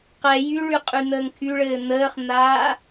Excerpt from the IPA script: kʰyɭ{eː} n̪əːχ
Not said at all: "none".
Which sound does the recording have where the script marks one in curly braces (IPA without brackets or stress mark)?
ɘː